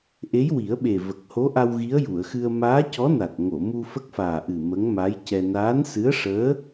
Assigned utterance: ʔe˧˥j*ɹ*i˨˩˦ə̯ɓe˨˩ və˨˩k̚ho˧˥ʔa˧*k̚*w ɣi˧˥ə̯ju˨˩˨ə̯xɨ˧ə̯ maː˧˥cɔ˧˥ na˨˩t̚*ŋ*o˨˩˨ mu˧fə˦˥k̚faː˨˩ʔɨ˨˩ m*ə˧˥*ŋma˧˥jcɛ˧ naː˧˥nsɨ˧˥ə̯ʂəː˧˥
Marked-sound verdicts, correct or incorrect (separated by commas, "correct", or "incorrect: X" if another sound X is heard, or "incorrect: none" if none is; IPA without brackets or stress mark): incorrect: w, incorrect: none, correct, correct